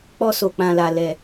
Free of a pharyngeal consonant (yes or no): yes